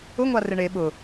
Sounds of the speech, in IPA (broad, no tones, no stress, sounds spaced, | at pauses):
ʊ ŋʷ a r ɪ ɳ e ɓ ʊ